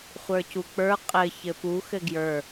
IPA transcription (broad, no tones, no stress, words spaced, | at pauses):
χʷə˞cuk͡pə˞ qʼɘ çɘpu xɘɡjə˞